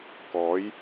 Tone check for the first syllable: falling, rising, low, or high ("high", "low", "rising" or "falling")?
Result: rising